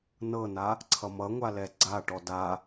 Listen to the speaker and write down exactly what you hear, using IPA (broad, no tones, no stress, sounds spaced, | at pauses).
n ɤ n a | ǀʰ ʌ m ʌ ŋʷ a l ɛ ɡ͡ǀ a ʈ ɔ d a